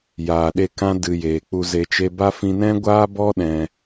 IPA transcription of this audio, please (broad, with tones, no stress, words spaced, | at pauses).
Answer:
jaː˨ɗe˦˨kã˦ dɨ˨ jeː˨k͡pu˧ ze˨t͡ʃe˧ ba˦ fĩ˧nɛ̃˦ɡʷaː˦bɔ˦ ɗɛ̃˧